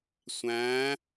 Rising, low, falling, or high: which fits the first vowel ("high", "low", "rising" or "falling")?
rising